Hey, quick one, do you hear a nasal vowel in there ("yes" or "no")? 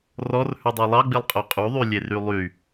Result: no